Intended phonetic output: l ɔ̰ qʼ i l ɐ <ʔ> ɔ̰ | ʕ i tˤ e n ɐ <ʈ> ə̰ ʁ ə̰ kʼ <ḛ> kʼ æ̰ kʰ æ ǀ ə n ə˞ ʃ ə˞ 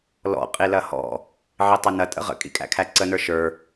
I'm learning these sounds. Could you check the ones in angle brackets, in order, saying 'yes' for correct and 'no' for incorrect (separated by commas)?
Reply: no, no, no